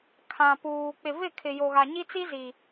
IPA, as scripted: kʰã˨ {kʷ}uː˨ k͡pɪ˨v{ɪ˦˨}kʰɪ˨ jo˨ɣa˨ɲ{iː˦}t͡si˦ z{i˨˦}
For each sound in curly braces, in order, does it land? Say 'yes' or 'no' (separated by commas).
no, yes, no, no